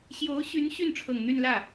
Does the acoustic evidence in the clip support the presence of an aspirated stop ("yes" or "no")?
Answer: yes